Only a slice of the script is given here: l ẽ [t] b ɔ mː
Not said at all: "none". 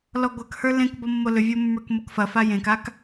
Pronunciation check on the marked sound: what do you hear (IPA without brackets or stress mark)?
k